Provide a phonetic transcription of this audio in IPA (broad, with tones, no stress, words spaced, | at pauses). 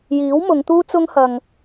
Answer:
jiː˨˥wmʊ˨˧ŋ t̪uː˥t͡sʊ˥ŋ hɐ˨ŋ